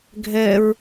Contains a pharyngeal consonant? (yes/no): no